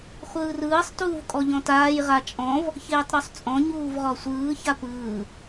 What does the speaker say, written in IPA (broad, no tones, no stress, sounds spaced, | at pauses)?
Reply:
χʷ ɯː r ɯː sˤ t uː v kʼ ɔ ʎ ɔ̃ t aː j ʁ a t͡ʃʼ ɔ̃ v | ç eː tˤ ɾ u sˤ t͡sʼ ɔ̃ ɲ uː v ʁ ɔ sʷ ɯː ç a p ɯː